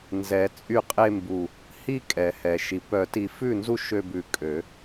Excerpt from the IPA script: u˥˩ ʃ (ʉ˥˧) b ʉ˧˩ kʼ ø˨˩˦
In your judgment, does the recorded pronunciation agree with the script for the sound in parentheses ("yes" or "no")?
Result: no